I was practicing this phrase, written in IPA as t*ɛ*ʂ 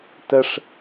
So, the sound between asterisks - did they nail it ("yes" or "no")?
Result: no